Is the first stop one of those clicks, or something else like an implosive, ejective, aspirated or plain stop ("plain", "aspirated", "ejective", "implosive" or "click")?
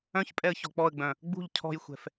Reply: ejective